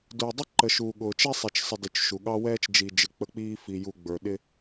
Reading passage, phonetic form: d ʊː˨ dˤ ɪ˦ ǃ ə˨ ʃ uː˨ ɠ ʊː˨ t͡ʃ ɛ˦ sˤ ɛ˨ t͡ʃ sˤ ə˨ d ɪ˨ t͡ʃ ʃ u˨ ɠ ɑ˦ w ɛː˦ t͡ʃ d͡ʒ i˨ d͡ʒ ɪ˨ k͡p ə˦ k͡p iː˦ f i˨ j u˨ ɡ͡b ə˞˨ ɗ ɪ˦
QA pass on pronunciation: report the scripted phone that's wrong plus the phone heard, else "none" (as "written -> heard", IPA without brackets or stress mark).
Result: none